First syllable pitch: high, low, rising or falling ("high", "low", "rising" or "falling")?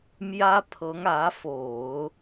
high